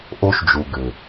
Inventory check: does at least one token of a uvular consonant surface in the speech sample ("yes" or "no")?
no